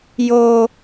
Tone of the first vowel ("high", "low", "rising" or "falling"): high